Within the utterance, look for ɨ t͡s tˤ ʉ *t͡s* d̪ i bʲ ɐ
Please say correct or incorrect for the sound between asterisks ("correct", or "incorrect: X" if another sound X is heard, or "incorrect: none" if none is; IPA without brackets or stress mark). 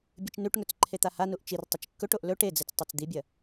correct